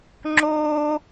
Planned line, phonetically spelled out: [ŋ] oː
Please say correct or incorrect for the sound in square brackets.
incorrect: ŋ͡ǁ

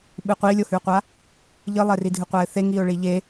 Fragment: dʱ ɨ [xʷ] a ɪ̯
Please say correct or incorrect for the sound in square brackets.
incorrect: qʷ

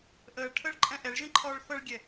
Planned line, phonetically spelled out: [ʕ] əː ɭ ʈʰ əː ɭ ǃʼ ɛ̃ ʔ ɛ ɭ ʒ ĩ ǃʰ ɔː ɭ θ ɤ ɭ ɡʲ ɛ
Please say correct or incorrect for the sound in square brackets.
incorrect: ʔ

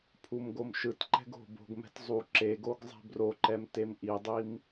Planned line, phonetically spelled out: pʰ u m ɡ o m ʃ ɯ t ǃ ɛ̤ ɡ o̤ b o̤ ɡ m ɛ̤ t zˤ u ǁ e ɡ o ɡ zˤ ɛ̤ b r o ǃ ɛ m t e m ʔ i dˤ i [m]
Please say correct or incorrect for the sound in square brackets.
correct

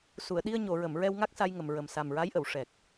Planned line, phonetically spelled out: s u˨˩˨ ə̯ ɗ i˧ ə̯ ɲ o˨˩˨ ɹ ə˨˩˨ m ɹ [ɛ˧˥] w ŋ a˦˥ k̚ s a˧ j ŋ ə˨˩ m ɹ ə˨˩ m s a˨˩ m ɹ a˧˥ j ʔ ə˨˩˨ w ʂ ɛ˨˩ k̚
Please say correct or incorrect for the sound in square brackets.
incorrect: ɛ˧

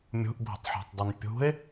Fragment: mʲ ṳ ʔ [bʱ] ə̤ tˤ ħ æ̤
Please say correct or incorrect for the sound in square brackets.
correct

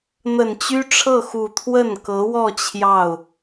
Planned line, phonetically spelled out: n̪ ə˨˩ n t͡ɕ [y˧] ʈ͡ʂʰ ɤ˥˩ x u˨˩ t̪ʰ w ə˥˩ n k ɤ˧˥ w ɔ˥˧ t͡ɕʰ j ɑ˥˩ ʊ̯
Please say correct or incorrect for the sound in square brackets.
incorrect: y˥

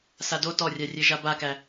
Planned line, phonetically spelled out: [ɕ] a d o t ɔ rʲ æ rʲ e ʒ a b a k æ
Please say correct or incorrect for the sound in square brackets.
incorrect: s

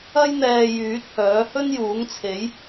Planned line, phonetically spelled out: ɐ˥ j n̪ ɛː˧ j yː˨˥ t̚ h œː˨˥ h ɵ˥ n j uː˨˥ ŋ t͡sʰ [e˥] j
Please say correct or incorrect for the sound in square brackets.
incorrect: e˨˥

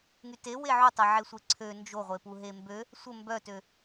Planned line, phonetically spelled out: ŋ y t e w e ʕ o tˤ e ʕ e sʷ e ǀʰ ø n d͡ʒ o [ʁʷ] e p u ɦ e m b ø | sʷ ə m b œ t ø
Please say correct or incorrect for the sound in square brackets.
correct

